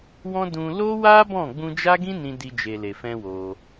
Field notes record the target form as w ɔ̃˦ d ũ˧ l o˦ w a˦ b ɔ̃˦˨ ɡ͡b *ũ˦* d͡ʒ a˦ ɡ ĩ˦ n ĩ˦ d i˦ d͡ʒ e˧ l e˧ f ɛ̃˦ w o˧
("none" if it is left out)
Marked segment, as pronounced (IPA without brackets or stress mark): ũ˧